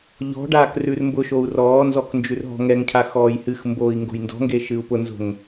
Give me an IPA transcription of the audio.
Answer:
ʎɔ̤ɖaːk rʉrmbʊʃou̯ rɔːnzɔk nd͡ʒʉrɦɔ̤ŋɛŋcʰa xɔːjhɨxmboːi̯ ŋɡo̤jndɔ̤ŋɡe ʃɨu̯pʊnzo̤ŋ

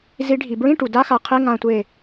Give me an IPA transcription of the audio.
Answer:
zi˨˩˦ɖʱi˩bɹĩ˧˥˧ ʈu˩da˧˥˧xa˧˩qʰe˧˥˧ ŋã˧˩tʷe˧˩

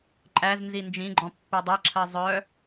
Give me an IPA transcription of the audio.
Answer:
ǃʼæz nzind͡ʒĩɡ͡ǃɔ̃ pːɛdˤɛǁʰɜ zˤœ

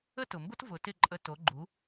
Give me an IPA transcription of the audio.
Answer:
ə˥tʊ˩mbʊ˥t vʊ˩˥tɪ˥˩ǃʼə˧ to˩˥ɡ͡ǃu˩˥

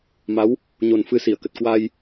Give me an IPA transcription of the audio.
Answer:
ma˨˦w | ɲo˨˩n fɨ˧si˧˩ə̯kə˨˩t̚ kwa˧j

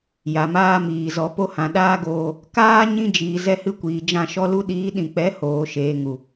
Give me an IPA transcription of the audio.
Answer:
ja˨maː˧miː˨ zɔ˨po˧hã˨ ɗaː˦ɡoː˧ | kaː˦ ɲĩ˧d͡ʒiː˨ zɛ˧hɨ˧kʷiː˨d͡ʒã˧ ʃɔ˧lu˧ɗiː˨˦ɗĩ˨ k͡pɛ˨˦hoː˨ʃeː˨ŋu˨

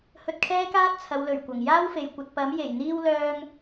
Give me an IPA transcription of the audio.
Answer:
hɵ˧t̚kʰɛː˥kaː˥t̚ t͡sʰɐ˨˧wlɵ˨˩ɥ kʷɐ˨˩ŋjaː˥wfe˨j kʷɐ˨t̚pɐ˨˥m je˨˩jn̪iː˧w lœː˧ŋ

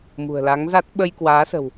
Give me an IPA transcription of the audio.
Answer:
mṳ˨˩ə̯la˨˦ŋza˦˥t̚ ɓə˧jkwaː˨˦sə̤˨˩w

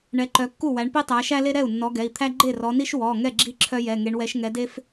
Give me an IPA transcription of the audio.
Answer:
ɳɛ˨˦ǃœ˨˦kːu˥˩wæ˨˦ɳ pi˥tˤæ˨˦ʃæ˥le˥ ɾɛ˥˩u̯nːɔ˨˦ɡɛ˩˧˩i̯t̪ʰæ˥ ɡ͡ǃe˥˩rɔ˨˦ni˥ʃ wɔ˩˧˩ ŋɛ˥˩ ɡ͡ǁi˥ ǁʰœ˥jɛ˩˧˩ŋe˨˦ɳ wɛ˨˦ʃŋɛ˨˦de˥f

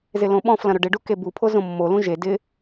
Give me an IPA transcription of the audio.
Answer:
zɪlõɓɔ̃flɐ̃ ɾʊɖɪɖu kebupʰo zõmːolũ ʒe dɪ

